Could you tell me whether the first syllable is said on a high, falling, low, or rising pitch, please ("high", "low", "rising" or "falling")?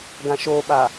low